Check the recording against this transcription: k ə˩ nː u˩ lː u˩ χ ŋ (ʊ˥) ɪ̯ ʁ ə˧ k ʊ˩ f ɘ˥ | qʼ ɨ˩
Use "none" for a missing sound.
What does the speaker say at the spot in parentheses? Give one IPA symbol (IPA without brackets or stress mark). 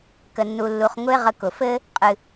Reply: ʊ˥